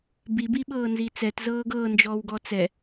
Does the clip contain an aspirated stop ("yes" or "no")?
no